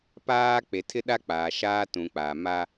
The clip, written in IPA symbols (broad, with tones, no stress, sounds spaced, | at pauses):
p aː˦ k͡p e˨ tʰ ɪ˦ ɗ a˦ k͡p aː˨ ʃ aː˦ t ũ˨ k͡p aː˨ m a˦